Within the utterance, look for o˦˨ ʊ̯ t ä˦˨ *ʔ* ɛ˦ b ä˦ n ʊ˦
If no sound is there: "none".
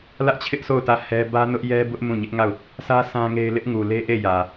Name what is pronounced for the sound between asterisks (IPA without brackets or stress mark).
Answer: h